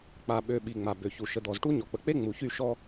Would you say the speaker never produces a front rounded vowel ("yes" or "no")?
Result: no